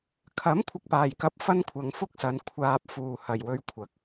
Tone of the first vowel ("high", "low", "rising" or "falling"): rising